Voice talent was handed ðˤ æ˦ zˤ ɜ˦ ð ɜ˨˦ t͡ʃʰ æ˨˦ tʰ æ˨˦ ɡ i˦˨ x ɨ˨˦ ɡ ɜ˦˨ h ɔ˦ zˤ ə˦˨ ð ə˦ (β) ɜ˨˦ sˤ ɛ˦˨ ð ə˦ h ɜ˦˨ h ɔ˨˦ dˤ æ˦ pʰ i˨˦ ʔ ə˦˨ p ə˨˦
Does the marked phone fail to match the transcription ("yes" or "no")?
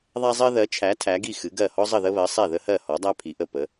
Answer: no